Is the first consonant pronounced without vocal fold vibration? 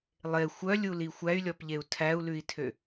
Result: no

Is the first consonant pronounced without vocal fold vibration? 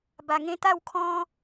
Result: no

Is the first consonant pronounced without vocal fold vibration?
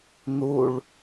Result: no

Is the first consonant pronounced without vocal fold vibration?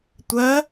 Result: yes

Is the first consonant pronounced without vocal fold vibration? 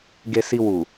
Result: no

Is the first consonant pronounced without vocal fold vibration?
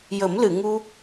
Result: no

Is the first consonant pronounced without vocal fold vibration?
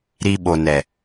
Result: no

